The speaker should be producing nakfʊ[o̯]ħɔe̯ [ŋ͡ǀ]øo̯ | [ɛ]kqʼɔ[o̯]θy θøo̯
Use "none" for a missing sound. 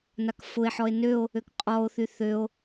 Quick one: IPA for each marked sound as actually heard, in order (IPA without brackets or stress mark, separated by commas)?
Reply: e̯, n, ø, o̯